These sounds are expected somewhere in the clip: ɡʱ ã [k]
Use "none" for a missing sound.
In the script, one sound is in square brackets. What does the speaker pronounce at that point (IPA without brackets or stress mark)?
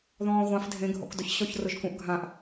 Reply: ʔ